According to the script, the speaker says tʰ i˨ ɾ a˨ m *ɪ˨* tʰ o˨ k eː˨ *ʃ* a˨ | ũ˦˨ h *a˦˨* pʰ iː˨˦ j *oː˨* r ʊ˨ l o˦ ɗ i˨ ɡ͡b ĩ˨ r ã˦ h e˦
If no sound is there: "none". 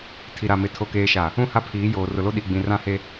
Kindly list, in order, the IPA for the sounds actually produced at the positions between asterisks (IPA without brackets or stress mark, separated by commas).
ɪ˨, ʃ, a˦˨, oː˨